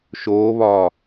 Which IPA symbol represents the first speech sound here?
ʃ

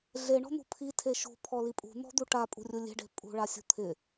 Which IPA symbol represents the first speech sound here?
ɮ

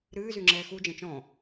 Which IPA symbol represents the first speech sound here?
ɾ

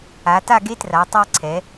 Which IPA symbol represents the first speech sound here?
a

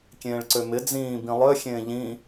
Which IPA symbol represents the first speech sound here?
kʲ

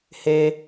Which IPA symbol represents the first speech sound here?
h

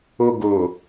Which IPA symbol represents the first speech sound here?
o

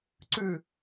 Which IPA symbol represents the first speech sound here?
ǀ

